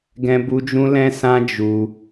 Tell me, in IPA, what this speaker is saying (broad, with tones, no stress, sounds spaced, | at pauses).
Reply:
ɡ ɛ̃˦ b u˦ d͡ʒ ũ˦ l ɛ̃˦ s ã˦ d͡ʒ u˧